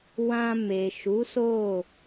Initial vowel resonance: nasal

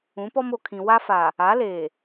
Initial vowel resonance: nasal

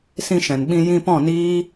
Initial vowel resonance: nasal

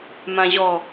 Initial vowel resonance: nasal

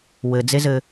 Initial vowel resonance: oral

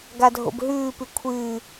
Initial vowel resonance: oral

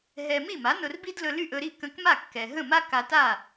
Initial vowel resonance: oral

